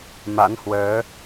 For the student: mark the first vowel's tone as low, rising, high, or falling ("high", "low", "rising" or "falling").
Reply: rising